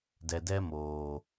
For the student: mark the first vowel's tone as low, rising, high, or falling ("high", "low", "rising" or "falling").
low